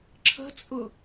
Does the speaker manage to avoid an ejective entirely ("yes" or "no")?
no